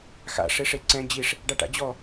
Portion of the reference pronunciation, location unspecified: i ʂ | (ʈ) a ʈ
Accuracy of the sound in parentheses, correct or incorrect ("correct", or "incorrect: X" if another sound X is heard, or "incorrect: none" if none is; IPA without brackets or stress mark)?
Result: incorrect: ɖ